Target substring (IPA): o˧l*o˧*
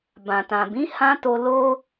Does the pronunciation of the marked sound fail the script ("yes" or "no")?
yes